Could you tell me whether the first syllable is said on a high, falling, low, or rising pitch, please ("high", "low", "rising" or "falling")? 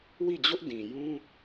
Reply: falling